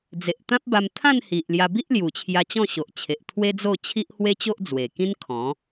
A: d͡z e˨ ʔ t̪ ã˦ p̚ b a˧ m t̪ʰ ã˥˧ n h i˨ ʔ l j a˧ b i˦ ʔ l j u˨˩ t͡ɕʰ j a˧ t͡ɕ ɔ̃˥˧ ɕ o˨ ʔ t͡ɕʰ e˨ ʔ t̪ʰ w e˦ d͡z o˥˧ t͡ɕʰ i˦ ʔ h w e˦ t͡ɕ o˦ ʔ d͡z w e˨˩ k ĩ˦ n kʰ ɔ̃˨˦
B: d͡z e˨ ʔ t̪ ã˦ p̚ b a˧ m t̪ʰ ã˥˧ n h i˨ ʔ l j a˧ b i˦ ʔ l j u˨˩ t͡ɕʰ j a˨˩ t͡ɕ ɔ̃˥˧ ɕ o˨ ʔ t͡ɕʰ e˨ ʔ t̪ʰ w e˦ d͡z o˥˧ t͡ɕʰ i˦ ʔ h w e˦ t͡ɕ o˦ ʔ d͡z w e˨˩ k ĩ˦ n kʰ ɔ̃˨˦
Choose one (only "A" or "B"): A